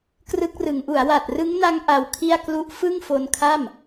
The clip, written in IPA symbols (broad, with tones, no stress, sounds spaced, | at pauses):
k r ɯ˦˥ k̚ r ɯ˩˦ ŋ ʔ u˩˦ a̯ w a˨˩ t̚ r ɯ˦˥ ŋ n a˦˥ ŋ ʔ a˧ w kʰ i˥˩ a̯ k l u˦˥ ʔ f ɯ˥˩ ŋ f o˧ n kʰ a˥˩ m